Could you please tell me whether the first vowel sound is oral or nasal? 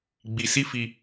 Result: oral